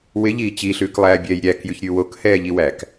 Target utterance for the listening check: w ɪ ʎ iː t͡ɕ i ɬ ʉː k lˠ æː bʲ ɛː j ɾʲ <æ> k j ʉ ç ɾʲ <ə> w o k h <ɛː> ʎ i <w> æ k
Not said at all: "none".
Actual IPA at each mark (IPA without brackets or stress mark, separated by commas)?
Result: æ, ʉ, ɛː, w